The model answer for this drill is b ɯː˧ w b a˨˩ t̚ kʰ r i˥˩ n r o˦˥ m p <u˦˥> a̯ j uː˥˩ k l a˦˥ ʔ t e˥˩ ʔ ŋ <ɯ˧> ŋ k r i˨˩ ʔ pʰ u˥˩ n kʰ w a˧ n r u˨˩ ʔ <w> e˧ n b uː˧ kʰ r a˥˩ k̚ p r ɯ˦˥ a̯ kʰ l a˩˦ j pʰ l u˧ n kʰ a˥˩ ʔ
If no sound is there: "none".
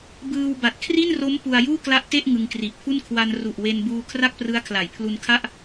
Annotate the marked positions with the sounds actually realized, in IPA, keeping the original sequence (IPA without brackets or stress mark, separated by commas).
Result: u˧, ɯ˧, w